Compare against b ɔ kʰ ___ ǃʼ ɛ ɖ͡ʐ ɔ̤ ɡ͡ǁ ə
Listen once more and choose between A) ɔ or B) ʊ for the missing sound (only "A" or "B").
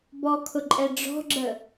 B